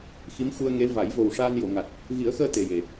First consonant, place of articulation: velar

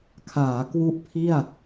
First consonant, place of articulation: velar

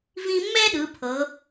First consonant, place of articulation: labial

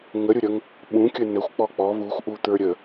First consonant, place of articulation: velar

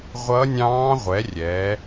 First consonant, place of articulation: uvular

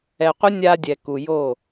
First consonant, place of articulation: uvular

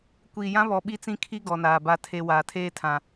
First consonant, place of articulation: velar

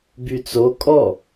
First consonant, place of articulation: labial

